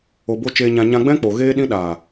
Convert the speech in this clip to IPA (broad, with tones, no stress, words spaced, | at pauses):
o˨bo˧ t͡ʃeː˨ɲã˨ ɲã˧ɡ͡bɛ̃˦k͡po˨ ɣeː˧ɗĩ˧ ɗaː˨